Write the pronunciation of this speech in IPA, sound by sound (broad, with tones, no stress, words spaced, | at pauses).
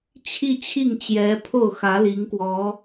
t͡ɕʰi˥˧t͡ɕʰi˥˩ŋt͡ɕjɛ˧˥ pʰo˥˩ʊ̯xä˧˥ li˧˥ŋkwɔ˧˥